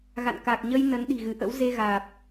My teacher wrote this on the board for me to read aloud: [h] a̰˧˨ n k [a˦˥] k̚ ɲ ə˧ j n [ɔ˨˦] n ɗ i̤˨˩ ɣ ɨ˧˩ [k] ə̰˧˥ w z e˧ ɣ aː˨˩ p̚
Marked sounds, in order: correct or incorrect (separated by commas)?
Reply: incorrect, incorrect, incorrect, incorrect